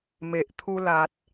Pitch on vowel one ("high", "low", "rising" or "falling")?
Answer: low